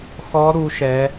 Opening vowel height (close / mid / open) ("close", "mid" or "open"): mid